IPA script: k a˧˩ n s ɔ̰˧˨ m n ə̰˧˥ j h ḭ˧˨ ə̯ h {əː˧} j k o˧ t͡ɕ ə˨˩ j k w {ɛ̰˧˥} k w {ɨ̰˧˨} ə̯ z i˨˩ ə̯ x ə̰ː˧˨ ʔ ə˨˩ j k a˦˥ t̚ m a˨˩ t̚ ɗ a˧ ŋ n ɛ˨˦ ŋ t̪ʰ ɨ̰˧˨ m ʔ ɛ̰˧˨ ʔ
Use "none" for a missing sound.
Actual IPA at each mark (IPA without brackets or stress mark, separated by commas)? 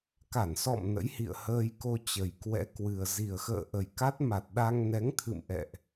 əː˧, ɛ̰˧˥, ɨ˨˩